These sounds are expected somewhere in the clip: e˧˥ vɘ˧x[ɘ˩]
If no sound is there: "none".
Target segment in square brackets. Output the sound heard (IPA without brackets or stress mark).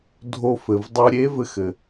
ɘ˩